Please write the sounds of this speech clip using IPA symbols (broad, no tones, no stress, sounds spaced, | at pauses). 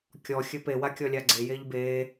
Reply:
kʲ ɔ xʲ ɘ p e w a kʲ ɔ lʲ a ɡ͡ǀ e j e ʎ b eː